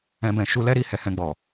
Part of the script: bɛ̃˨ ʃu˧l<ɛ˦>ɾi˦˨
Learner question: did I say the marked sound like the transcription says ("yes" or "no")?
yes